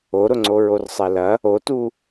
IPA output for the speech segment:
o ɾ ʊ ŋ͡ǀ o ɹ o r sˤ ɛ l ɐ | o t u

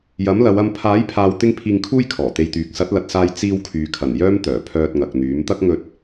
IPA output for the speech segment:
j ɐ˨˥ m l ɐ˨˧ w ɐ˧ m pʰ aː˨˥ j pʰ aː˨ w t̪ ɪ˧ ŋ pʰ iː˧ ŋ kʰ uː˥ j kʰ ɔː˨˩ t̪ e˧ j t̪ yː˨˥ k̚ s ɐ˨˥ t̚ l ɐ˨ t̚ s aː˧ j t͡s iː˧ w kʰ yː˨ kʰ ɐ˨˩ n j œː˥ m t̪ œː˨˩ pʰ œː˧ t̚ ŋ ɐ˨ k̚ n̪ yː˨˥ m t̪ ɐ˥ k̚ ŋ ɵ˧ t̚

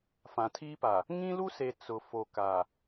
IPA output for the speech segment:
f ã˨ tʰ iː˦ p a˨ | ŋ ĩ˦ l u˦ s e˨ t͡s ʊ˨ f o˨ k aː˨

